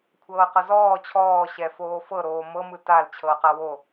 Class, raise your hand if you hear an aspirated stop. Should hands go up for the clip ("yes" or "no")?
yes